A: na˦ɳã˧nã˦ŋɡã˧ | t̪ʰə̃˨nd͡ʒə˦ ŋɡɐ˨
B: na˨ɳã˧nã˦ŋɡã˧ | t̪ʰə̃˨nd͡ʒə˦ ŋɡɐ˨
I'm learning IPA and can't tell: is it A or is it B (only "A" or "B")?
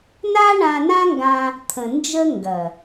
A